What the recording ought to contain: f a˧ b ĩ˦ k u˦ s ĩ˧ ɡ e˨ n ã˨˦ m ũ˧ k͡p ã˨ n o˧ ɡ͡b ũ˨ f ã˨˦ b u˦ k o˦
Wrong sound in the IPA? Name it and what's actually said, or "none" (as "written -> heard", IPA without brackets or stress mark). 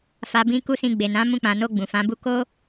ɡ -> ɡ͡b